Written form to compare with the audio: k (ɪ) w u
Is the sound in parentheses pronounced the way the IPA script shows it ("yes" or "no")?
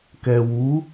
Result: no